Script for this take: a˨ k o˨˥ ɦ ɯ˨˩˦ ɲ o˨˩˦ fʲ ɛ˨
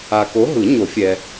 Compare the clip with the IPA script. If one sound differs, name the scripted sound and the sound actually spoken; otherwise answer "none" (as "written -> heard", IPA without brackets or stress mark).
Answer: none